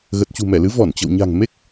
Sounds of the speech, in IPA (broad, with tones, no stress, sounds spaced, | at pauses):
ɣ ə˨˩ t̚ t͡ɕ ṳ˨˩ m ɛ˧˩ l ɨ˨˦ v ɔ˧˩ n t͡ɕ ə̰˧˨ w ɲ a̤˨˩ ŋ m e˦˥ k̚